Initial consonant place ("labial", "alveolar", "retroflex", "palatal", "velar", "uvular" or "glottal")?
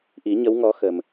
glottal